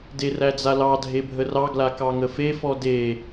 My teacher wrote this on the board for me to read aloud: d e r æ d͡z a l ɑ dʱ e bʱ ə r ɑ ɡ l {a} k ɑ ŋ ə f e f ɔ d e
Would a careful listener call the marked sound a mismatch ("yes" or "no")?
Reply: no